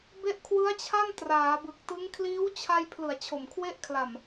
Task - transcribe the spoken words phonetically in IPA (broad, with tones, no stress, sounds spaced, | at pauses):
b e˦˥ ʔ kʰ w ɯ˦˥ a̯ t͡ɕʰ a˥˩ n t r aː˩˦ b ɯ˨˩ k̚ t ɯ˦˥ ŋ kʰ l iː˦˥ w t͡ɕʰ a˧ j pʰ l ɯ˨˩ a̯ t͡ɕʰ o˨˩ m kʰ w e˦˥ ʔ kʰ l a˨˩ m